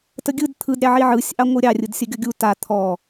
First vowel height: mid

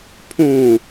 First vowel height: high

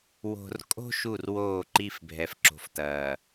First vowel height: mid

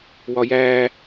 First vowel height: low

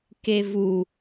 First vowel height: mid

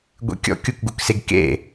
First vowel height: mid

